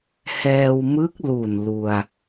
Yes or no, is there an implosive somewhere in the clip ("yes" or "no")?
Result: no